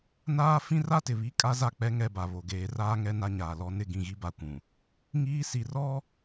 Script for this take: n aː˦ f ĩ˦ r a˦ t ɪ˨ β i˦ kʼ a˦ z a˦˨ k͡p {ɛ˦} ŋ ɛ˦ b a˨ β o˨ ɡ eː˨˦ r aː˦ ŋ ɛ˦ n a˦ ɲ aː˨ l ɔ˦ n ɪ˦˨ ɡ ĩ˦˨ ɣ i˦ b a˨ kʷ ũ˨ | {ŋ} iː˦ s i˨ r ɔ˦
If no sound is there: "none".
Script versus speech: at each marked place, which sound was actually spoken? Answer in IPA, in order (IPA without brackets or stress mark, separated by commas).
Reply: ɛ˦, ŋ